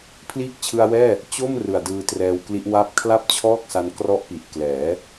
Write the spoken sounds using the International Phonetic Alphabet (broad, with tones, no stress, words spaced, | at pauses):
pʰliː˦˥k̚t͡ɕʰɯ˧a̯wɛː˥˩ | t͡ɕo˥˩m rɯ˨˩a̯dɯː˧trɛː˧wkli˦˥ʔ wa˥˩p̚ kʰla˥˩p̚t͡ɕʰɔː˥˩k̚sa˧n krɔ˦˥ʔpi˨˩ʔklɛː˩˦